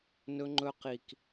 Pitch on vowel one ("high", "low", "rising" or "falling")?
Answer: high